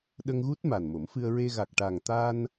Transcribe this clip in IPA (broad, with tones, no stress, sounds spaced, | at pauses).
ɗ ə˧ ŋ ɣ u˦˥ t̚ m a˨˩ n m o˨˩˦ m f ɨ˧ ə̯ ɹ e˧ ɣ a˨˩ k̚ ʈ a˨˩ ŋ t̪ a˧ n